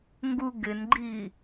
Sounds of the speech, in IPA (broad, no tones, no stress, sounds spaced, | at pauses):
ŋ ɡ u ɡ ɪ n ɡ͡ǃ i